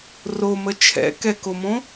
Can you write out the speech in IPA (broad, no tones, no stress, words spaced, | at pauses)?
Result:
romə t͡ʃʰɛ̰kɛkomõ